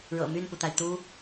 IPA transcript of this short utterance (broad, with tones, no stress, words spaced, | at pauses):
ɻɤ̰˨˩my˥˩npu˩t̪a˩ɪ̯ t̪u˥